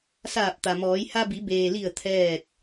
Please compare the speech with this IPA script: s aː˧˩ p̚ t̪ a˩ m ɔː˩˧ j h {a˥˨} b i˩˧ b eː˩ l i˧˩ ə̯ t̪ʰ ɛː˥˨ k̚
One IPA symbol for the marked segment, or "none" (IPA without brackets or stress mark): a˧